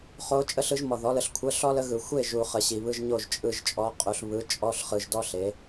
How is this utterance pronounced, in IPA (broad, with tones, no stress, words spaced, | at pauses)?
χo˧˥ t͡ʃʼə˧˥˧ɬɯ˩˥ʒ mɔ˨ðɔ˩˥lə˩˥ɬ kʷʰə˧˥˧ɬɔ˥lə˧˥ɣɯ˨ xʷe˥˨ʒu˨ χə˨ɕi˨βɯ˧˥˧ʒ ɲo˥˨ʒt͡ʃʼɯ˥˨ʒt͡ʃʼɔ˧˥ qʼu˩˥ɬ βɯ˩˥ t͡ʃʼɔ˧˥˧ɬχɯ˨ʒdɔ˥ɬ e˩˥